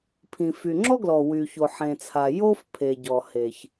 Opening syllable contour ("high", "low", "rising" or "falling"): low